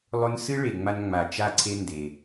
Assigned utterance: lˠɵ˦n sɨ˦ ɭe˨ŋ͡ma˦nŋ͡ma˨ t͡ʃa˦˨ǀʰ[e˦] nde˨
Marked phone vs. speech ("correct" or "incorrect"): correct